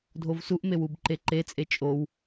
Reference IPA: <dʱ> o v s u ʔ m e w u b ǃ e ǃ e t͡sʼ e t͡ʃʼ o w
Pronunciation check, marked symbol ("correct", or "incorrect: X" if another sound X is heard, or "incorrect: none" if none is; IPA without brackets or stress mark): correct